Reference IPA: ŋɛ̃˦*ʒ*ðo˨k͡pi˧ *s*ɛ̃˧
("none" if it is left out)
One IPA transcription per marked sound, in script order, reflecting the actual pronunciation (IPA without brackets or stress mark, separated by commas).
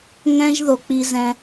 ʒ, z